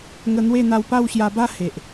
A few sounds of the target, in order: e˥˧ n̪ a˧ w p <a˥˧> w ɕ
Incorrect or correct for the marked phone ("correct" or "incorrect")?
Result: correct